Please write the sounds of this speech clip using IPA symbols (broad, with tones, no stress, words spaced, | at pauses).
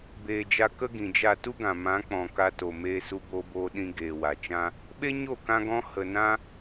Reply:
beː˨d͡ʒa˧ kə˦ɡĩ˨d͡ʒa˦˨ tu˦ɡã˨ mã˨˦k͡pɔ̃˨ ka˧to˨ meː˧ su˧boː˧boː˧ ɗĩ˧ ɡeː˨wa˨t͡ʃã˦ | ɓe˦ɲo˦˨kã˧ɡɔ̃˧ hə˨nã˦